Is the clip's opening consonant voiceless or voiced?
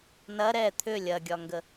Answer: voiced